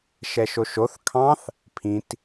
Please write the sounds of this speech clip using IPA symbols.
ʃɛʃoʃoθ kʰɑ̃θ | pʰĩt

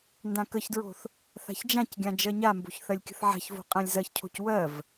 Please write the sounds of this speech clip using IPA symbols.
ndãkəçdɹo̤θ | θa̤çd͡ʒãcɡʲã d͡ʒɜɲambo̤ç θɜlʲkʲə̤θʕa̤çvo̤ qʼãlʲzɜçcʰo̤c wɜv

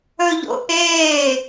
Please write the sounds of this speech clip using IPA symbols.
ɵʎo̰ʔeː

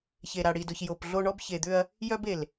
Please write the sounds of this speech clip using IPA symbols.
çe˨ ɾa˨ɽi˨dʊ˨ç jo˨pɮo˦ ɳɔ˦bçe˨d̪ʏ˦ɐ̯ | jœ˦be˨l

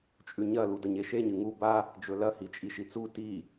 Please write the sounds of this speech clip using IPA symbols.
t͡ʃʼʉɲɐ ludɐɲeʃeɲ ɨŋu ba | d͡ʒɵlɐ hit͡ʃʼiʃit͡su ti

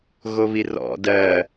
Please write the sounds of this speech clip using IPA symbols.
ɣoβirɔ̰ dɜ

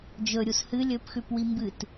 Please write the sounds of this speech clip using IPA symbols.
d͡ʒɵɾʲus hɨ lʲɵpxʉpwi mbɨt

